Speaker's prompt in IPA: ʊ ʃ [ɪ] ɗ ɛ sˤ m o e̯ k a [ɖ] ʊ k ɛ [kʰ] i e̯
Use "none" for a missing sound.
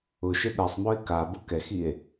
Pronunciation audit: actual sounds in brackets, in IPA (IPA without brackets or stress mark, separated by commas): ɪ, b, x